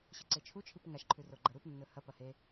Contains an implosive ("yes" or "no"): no